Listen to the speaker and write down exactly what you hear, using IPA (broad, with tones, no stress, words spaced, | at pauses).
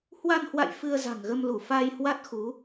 hwa˧nhwa̰˧˨j fɨ˧ə̯za̤˨˩ŋɣə˧m lu˧˩ fa˧jhwa˦˥t̚xu˨˦